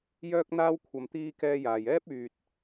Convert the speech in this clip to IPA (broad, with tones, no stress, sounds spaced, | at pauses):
j œː˥ k̚ n̪ aː˥ w kʷʰ ɐ˧ m t̪ iː˥ k ɛː˥ j aː˧ j ɛː˥ p̚ yː˧ t̚